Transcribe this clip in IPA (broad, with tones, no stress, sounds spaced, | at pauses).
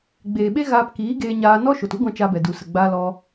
ɡ͡b eː˨ ɓ e˦ ɣ aː˧ p k iː˨˦ ɡ eː˧ ɲ aː˧ n ɔ˦ ʃ o˨ t u˦ ɡʷ ã˧ t͡ʃ a˧ b ɛ˨ d u˨ s ə˨ ɡ͡b aː˧ l ɔ˧